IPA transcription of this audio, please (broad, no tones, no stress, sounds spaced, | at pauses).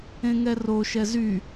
ẽ ŋ ɛ r o ʃ ɛ z y